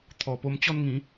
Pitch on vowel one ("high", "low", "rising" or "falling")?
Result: low